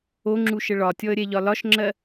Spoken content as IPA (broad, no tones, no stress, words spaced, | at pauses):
oŋ͡ǁuʃə ɭɒtʲɔə̯ɾʲɛʎɒ lɒʃŋ͡ǁɜ